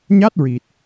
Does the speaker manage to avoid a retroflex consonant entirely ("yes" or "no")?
yes